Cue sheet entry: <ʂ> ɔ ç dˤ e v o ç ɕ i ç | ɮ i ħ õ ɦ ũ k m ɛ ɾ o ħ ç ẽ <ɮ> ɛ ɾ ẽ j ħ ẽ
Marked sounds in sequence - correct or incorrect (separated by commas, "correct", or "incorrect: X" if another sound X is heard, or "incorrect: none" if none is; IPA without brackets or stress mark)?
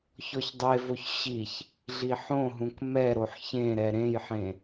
incorrect: ç, incorrect: ɾ